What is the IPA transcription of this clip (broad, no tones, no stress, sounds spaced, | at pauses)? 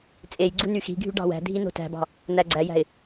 t͡sʼ e j ɡ͡ǀ u n y x i̤ ɡʱ y ɖ ɑ̤ w æ̤ dʱ i n o̤ t æ̤ b ɑ̤ | n̪ æ ɡ͡ǀ æ j æ̤ ɪ̯